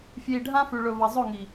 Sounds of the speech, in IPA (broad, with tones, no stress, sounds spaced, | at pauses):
f j i˨ ɖʱ ã˦ f ʉ˨ ɭ ɵ˨ v ɐ˨ zˤ ɵ˦˨ ŋ i˨